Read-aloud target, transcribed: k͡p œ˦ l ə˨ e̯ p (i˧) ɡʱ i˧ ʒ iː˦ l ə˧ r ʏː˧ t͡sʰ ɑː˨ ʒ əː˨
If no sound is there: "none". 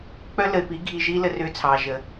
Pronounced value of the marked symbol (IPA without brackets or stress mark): i˨˦